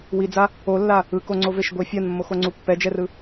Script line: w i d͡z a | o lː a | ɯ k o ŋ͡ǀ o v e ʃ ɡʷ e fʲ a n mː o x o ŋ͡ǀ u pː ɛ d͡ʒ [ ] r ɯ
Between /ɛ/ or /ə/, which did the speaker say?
ɛ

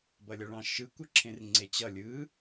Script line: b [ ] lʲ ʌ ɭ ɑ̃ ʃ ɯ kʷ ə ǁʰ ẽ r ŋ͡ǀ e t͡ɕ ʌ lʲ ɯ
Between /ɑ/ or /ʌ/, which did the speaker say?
ʌ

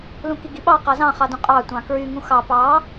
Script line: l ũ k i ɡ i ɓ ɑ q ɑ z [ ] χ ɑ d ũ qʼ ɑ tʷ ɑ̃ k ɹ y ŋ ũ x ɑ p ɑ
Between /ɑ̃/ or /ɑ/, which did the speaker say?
ɑ̃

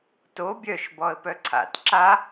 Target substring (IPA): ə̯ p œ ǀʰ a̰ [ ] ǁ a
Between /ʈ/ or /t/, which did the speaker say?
t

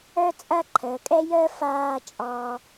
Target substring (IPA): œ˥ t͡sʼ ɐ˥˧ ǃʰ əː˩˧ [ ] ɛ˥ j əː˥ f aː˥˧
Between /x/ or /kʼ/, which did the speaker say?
kʼ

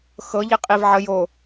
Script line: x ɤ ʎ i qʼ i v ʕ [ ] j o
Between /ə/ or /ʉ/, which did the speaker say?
ə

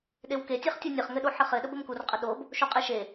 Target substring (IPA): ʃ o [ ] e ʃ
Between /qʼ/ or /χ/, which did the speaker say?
qʼ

